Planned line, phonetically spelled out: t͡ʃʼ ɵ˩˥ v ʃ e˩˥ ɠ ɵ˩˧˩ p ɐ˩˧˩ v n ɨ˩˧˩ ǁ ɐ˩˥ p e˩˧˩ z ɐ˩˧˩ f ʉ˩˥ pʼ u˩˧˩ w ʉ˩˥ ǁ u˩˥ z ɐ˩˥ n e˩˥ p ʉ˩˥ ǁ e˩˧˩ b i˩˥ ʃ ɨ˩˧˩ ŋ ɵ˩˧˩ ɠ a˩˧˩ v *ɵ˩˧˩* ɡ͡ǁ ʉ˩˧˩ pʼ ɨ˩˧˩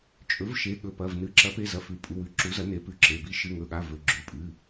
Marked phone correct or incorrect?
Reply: correct